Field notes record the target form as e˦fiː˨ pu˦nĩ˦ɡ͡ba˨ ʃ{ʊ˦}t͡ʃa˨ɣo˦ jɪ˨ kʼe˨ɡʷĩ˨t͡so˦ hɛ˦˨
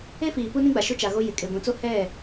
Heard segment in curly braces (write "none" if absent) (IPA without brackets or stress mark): ʊ˦